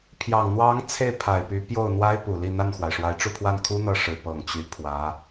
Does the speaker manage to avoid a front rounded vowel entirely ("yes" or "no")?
no